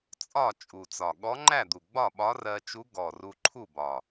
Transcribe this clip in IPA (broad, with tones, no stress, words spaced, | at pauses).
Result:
t͡sʼɒ˥˨ t͡ʃʼu˨˩t͡sɒ˨˩ ɠɔ˧˥ŋ͡ǃæ˥˨d̪u˨˩ ɡ͡bɒ˥˨ɓɒ˧˥rɜ˧ t͡ʃu˧˥ ɡɔ˨˩ ru˧ǃʰu˥˨bɒ˨˩